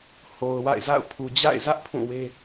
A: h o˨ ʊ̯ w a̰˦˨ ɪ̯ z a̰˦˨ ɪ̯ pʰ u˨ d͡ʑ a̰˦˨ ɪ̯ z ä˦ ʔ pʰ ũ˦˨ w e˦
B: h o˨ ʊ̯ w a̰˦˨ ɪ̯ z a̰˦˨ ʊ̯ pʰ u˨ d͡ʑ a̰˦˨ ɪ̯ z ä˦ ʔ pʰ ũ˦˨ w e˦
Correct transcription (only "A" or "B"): B